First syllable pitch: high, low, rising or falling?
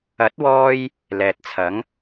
rising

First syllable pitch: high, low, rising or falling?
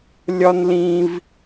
high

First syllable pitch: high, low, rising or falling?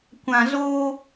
low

